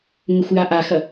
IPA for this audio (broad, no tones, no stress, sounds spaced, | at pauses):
ŋ ɘ xʷ j a ʔ a x ɐ